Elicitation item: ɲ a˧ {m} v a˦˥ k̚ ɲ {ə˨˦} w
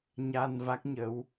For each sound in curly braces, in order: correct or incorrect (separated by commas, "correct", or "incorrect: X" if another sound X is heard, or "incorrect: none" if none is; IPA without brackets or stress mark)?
incorrect: n, correct